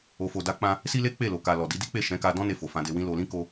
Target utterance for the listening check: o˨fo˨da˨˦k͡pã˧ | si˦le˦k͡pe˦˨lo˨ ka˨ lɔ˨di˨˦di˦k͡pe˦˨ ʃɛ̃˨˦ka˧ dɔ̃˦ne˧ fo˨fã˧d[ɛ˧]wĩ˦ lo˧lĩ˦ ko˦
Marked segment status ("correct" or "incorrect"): incorrect